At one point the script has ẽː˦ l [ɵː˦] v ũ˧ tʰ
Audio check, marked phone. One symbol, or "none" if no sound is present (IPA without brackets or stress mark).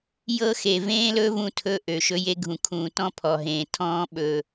ɵː˦